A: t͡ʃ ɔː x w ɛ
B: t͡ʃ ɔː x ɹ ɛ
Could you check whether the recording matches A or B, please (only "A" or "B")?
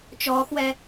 A